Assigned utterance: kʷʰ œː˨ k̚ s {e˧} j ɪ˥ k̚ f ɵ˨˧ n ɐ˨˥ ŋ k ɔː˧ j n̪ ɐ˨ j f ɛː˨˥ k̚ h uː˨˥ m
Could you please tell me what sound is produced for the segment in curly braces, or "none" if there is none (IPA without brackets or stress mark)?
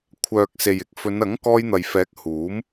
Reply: e˨